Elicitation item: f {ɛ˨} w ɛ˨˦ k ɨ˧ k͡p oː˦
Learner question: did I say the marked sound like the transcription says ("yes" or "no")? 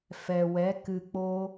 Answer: yes